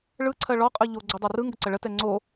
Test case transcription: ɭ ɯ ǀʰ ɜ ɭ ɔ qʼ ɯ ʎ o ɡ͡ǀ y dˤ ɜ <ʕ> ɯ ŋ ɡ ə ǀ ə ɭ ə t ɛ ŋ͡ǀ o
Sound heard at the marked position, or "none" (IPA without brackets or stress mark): r